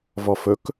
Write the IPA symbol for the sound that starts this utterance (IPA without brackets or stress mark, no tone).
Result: v